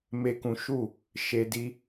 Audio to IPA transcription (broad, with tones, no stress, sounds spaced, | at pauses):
m e˦ k ũ˦ ʃ u˦˨ | ʃ e˦ d i˦